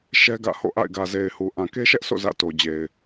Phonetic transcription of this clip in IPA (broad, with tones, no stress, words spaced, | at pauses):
ʃɛ˦ɡä̰˦˨ho̰˦˨ ʔa̰˦˨ɪ̯ɡä˨ze˨ɪ̯hu˨ ʔã˨ke˦ʃɛ˦ʔso̰˦˨ zä̰˦˨to˨d͡ʑe˨ɪ̯